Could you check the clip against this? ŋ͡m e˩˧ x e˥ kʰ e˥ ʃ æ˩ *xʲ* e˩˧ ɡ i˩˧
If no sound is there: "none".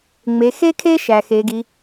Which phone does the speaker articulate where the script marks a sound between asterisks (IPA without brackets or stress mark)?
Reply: x